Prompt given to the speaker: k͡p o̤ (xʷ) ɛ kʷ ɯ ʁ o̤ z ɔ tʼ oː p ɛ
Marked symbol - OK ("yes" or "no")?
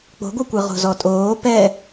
no